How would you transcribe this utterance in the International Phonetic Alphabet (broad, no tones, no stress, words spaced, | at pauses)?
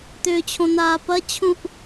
t̪ʏːt͡ɕʰõ n̪aːpɐt͡ɕʰũʔ